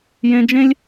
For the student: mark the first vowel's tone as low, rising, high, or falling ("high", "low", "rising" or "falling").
high